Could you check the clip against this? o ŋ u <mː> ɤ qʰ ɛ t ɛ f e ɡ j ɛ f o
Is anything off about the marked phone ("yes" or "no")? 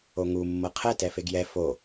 no